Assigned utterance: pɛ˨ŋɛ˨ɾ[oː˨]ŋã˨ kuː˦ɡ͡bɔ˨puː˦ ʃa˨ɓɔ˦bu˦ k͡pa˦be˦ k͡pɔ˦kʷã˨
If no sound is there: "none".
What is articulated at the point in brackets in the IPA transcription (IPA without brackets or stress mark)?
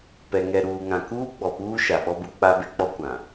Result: uː˨